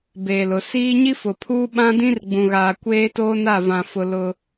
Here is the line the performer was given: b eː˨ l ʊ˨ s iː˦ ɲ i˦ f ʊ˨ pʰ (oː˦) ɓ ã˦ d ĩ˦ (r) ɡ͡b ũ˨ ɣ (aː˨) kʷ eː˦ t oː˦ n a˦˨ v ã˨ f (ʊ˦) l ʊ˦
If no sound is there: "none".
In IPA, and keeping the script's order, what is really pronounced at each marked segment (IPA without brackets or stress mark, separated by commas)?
uː˦, r, aː˨, ʊ˨